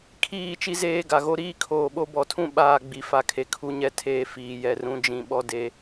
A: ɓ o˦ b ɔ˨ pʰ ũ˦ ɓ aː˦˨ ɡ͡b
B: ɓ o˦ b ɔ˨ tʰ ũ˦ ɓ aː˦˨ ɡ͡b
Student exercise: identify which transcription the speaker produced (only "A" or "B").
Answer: B